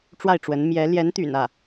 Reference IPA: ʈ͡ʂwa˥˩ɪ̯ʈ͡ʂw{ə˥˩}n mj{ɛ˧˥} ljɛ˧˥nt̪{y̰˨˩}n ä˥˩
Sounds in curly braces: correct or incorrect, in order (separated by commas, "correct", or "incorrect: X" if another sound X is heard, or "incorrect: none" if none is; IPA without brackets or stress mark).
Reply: incorrect: ə˧˥, correct, correct